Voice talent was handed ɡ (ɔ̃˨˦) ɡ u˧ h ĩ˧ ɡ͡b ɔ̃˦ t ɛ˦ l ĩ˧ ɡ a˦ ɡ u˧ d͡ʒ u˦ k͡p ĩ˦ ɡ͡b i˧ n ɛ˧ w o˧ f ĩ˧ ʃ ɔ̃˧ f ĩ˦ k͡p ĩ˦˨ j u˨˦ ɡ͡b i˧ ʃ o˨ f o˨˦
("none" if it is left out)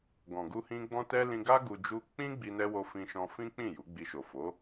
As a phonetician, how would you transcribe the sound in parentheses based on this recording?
ɔ̃˨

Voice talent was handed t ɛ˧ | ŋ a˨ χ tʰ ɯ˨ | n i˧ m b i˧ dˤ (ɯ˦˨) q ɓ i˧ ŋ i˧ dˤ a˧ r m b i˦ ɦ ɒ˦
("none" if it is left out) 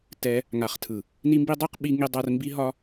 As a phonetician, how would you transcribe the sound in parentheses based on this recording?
ɯ˦˨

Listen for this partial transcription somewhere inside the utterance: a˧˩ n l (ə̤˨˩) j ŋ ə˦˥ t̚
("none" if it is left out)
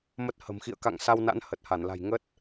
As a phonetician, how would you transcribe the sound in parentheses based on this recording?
a̤˨˩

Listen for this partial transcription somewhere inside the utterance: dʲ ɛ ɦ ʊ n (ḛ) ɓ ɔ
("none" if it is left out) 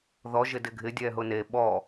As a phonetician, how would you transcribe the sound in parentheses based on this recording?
e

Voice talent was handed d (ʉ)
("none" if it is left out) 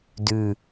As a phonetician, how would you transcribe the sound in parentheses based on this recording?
ʉ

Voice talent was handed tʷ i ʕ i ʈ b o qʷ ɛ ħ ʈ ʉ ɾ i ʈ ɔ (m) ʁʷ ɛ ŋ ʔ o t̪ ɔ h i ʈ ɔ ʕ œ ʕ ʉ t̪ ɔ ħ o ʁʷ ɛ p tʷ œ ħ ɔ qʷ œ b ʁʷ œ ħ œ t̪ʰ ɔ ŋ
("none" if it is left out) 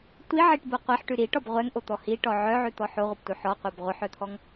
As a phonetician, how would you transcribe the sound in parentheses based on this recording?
b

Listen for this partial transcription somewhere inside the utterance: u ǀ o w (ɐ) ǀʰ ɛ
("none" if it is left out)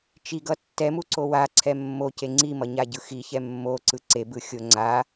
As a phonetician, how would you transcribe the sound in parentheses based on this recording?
a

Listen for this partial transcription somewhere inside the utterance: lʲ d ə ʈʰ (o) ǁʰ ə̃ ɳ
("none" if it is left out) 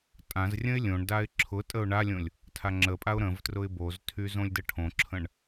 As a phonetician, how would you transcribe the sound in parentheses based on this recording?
õ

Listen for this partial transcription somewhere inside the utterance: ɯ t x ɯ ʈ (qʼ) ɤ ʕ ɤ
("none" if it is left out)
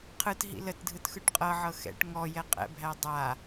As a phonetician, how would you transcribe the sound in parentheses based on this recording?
qʼ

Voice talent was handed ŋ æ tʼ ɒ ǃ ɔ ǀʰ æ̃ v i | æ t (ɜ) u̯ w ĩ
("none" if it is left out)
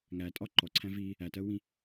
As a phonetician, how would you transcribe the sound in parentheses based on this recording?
ɜ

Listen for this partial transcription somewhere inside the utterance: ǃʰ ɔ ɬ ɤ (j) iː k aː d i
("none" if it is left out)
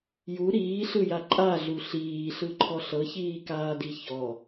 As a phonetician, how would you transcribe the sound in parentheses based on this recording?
ç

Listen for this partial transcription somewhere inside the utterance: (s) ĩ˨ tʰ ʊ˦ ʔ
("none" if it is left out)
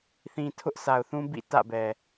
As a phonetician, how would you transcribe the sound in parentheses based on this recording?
θ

